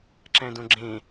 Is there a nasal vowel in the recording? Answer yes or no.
yes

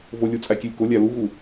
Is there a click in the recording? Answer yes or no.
no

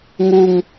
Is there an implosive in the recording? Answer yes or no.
no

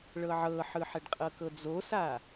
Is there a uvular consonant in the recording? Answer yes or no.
yes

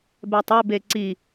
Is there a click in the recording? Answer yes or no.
yes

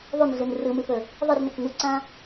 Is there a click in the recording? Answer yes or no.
yes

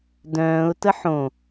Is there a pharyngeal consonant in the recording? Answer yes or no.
yes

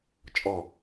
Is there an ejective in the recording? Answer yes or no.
yes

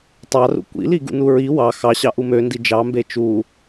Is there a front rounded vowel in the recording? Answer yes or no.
yes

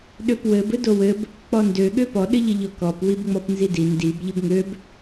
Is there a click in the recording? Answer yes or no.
no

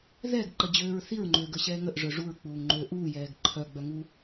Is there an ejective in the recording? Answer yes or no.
no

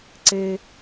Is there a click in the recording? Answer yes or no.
yes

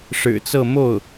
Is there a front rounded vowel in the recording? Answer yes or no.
no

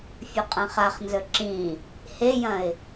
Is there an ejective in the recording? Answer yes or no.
yes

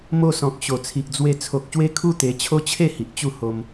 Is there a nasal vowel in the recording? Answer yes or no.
yes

